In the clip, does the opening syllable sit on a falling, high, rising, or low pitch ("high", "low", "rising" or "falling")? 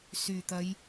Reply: low